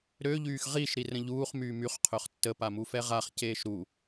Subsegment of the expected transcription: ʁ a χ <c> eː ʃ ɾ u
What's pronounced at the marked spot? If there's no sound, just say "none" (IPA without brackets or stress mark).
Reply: c